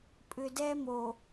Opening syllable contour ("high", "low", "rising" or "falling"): low